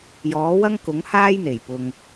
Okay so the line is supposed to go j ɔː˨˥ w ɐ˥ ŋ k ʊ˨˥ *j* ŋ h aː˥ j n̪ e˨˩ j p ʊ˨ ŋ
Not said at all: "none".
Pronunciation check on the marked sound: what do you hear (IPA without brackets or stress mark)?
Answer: none